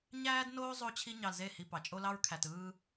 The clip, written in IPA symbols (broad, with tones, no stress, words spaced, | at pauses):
ɲæː˦dnoː˦ zˤo˦t͡ɕʰi˦ ɲɑ˧lze˦˨hi˧ pɑ˨t͡ʃʼo˦lɑ˦ɹ kʰæ˨tɯː˧